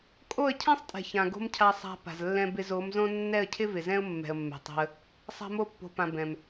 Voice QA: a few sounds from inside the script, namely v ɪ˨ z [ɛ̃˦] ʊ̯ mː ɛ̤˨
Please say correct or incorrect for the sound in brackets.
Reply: correct